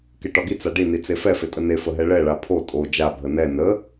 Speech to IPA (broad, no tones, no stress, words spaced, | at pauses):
keʈɒɡi t͡saɖi nit͡sefɛ fetʼəne fəɦɛɭɛ ɭapʰo tʼo d͡ʒa bʱənɛ nə